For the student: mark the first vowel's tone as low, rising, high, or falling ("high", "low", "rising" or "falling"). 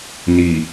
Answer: low